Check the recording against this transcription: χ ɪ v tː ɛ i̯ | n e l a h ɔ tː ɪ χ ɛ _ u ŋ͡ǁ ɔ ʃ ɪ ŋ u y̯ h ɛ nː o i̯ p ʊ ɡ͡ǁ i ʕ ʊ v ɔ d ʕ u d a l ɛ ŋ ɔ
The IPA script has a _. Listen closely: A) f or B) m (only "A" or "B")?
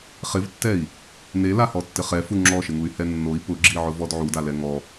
A